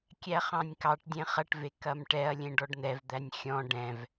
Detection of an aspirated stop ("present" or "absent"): absent